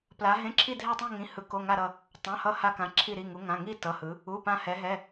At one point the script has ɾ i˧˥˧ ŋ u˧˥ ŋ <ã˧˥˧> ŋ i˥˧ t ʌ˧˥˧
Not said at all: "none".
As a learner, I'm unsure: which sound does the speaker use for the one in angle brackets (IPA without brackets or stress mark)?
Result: ã˧˥˧